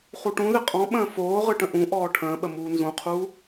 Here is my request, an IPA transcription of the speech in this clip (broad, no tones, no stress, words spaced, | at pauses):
χuʈũðɪ qʼɔ̃ ɓə̃ːfoːʁɯ ʈə̃ʔũʔɔː ʈʰə̃ːɓə muːnzũqʰuː